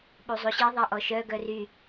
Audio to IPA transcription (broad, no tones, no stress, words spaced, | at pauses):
ɓuzˤuɕi ðˤaʔɔʃœ ɡœry